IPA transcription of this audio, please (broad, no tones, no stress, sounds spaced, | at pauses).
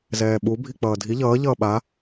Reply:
z ɛː ɓ u bʱ i k͡p ʌː dʱ i ʎ ʌː ʎ ʌː ɓ a